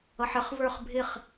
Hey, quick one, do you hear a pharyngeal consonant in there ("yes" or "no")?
yes